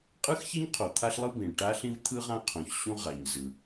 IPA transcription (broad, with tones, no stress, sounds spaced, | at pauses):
qʼ ɯ˥ x ç ɛ˥ ɲ qʰ o˩ t̪ʰ a˥ ɬ lˠ ɯ˥ b ĩ˩ ɭ ʈ a˥ ɬ ĩ˥ v t̪ʰ ɯ˥ ʁ ã˥ qʰ õ˩ ç ɕ ũ˥ ʁ a˩ ɲ z ɯ˩